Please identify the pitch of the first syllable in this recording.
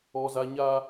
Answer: high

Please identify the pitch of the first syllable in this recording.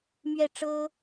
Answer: falling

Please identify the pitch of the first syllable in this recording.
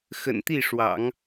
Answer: low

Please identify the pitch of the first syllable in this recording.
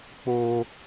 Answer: high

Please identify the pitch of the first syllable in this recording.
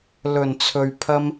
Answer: low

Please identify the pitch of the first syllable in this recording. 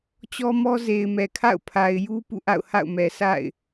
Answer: high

